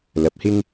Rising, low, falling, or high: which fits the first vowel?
rising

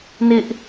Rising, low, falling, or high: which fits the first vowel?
high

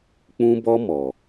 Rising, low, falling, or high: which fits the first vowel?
high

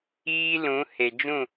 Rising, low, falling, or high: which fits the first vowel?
high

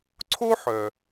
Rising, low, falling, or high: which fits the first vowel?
high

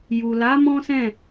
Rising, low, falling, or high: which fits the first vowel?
low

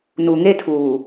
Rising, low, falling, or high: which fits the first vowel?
low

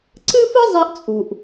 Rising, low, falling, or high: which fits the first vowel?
high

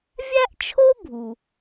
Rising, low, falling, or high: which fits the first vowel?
high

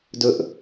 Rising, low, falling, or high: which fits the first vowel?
high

